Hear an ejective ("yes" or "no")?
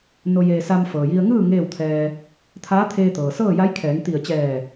no